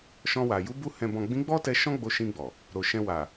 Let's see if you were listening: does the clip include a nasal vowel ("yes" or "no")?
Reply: yes